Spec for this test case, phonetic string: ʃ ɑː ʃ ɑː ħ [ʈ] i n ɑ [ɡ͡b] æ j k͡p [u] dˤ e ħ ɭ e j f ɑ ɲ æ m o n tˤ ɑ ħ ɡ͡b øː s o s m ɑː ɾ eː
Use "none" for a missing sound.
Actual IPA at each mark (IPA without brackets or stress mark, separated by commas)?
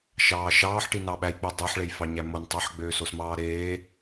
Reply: ʈ, ɓ, ø